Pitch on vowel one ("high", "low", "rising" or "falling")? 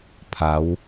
rising